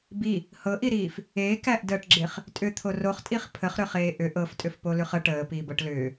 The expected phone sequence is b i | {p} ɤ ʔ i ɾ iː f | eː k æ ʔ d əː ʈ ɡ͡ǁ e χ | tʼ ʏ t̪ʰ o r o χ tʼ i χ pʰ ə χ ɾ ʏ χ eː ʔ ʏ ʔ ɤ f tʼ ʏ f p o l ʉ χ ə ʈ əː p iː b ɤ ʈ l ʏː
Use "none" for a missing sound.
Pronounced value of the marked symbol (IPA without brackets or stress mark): h